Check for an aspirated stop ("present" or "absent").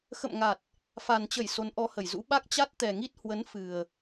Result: absent